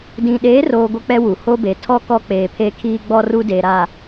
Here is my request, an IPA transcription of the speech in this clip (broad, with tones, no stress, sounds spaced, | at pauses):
d ĩ˨ ɗ eː˨˦ r oː˨ ɡʷ ɪ˦ k͡p ɛ˦ w u˨ h o˦ b e˨ tʰ ɔ˦ k ɔ˦ k͡p eː˨ pʰ e˦ kʰ iː˦ ɡ͡b ɔ˦ r u˦ d e˨ ɾ a˨